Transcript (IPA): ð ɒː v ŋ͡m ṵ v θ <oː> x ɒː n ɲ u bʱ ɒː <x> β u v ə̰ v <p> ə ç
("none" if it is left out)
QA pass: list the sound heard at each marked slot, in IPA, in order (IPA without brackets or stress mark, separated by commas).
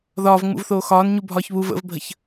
oː, ç, bʱ